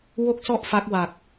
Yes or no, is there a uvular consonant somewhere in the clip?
no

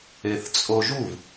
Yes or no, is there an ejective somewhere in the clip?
yes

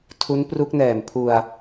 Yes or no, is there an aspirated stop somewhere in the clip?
yes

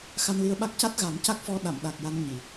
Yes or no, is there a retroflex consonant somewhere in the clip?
no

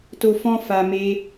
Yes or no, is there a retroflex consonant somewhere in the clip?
no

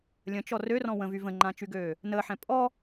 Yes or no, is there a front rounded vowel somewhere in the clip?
yes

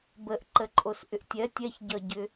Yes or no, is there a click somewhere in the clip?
yes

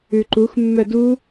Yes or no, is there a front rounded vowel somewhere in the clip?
yes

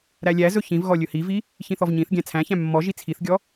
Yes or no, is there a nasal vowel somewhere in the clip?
yes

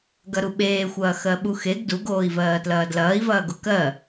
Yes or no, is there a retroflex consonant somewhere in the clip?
no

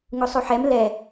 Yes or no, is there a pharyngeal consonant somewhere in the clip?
yes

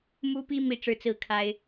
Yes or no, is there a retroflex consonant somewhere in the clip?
yes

